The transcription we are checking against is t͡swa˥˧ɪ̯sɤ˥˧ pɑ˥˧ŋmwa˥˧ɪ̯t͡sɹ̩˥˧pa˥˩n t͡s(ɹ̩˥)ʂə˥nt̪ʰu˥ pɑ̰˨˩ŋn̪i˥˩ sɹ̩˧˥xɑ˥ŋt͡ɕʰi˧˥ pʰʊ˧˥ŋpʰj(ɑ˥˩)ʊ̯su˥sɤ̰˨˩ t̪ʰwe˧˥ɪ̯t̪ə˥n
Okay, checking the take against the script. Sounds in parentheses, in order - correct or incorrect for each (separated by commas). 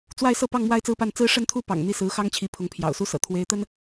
correct, incorrect